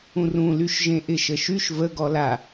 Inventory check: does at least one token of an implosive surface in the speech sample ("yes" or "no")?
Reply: no